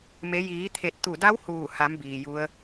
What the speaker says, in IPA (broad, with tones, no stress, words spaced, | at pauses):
me˩˧ jiː˩˧t̪ʰe˧˩t̚t̪u˧˩da˧˥w huː˧˩ ha˩˧m biː˩ju˧˥ə̯